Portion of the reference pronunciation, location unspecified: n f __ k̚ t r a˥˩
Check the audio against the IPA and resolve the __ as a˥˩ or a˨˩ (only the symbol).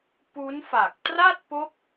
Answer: a˨˩